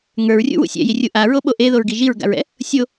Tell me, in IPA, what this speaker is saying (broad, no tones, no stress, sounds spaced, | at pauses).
ŋ ə˞ ɹ rʲ ṵ w ṵ sʲ ɛ̰ j i rʲ u ʔ a ɹ o ɓ o ʔ e ð o ɹ ɡ i ʒ i ɹ ɡ a̰ ɹ ɛ̰ | sʲ o